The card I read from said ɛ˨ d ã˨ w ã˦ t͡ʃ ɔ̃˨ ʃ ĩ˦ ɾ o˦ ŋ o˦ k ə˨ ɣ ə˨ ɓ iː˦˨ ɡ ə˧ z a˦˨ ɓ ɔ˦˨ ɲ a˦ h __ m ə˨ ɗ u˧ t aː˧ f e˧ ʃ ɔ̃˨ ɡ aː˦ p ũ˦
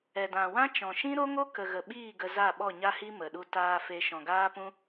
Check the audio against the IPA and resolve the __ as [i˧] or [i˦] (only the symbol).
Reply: i˦